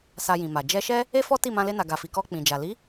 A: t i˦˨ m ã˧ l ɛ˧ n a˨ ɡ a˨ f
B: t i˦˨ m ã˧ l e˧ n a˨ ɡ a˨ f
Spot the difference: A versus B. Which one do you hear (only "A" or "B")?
B